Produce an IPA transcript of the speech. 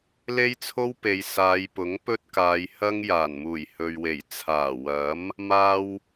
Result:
l e˥ j t͡sʰ o˥ w p e˨˧ j s aː˨˧ j p ʊ˨˥ ŋ p ɵ˥ t̚ k aː˨˧ j h ɐ˥ ŋ j aː˨˩ n m uː˨˩ j h ɵ˨ ɥ w e˨˩ j t͡sʰ aː˨˩ w ɐ˨˥ m | m aː˧ w

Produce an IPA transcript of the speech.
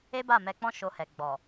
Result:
e˦ b a˦˨ m ɛ˧ k͡p ɔ̃˦ ʃ o˧ h ɛ˨ ɡ͡b ɔ˨

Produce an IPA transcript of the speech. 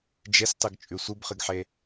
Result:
d͡ʒ e s tˤ ɨ ɡ t͡ʃʼ ʉ sʷ ɨ b χ ɨ ɡ ħ e

